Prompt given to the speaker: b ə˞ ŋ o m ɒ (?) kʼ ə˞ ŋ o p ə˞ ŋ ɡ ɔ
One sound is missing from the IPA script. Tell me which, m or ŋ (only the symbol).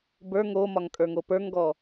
ŋ